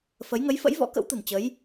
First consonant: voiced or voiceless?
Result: voiceless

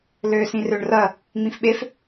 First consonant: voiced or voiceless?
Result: voiced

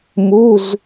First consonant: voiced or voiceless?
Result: voiced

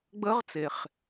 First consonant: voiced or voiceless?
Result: voiced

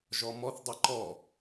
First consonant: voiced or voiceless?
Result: voiced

